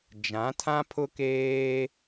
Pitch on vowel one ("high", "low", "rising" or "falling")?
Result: rising